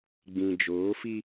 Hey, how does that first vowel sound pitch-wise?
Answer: low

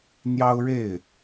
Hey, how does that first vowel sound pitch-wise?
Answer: high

